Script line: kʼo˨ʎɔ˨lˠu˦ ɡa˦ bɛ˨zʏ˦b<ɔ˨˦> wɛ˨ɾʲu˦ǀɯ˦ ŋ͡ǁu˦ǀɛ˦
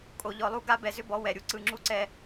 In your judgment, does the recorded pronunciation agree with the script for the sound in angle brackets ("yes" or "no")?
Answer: yes